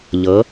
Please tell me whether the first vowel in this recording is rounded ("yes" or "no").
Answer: no